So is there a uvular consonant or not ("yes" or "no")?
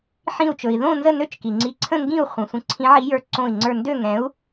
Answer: yes